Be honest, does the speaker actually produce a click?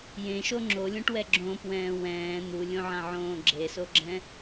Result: yes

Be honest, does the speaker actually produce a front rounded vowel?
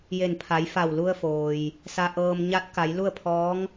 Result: no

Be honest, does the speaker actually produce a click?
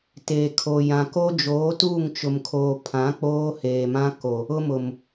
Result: no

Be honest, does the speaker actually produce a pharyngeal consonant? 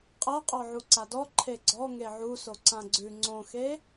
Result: yes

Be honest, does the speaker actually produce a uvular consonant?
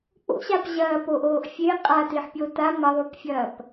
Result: yes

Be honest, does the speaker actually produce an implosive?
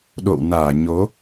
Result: yes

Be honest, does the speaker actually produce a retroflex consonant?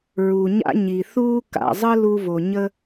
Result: no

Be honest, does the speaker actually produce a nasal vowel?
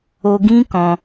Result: yes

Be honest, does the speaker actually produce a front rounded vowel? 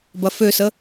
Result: yes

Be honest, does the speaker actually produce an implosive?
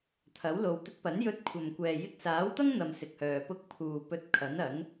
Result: no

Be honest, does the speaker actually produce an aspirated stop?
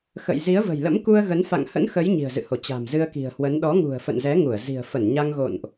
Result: no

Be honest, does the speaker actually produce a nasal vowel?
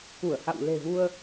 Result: no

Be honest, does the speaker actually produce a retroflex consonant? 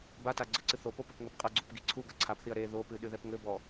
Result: no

